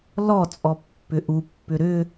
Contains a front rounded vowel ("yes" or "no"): yes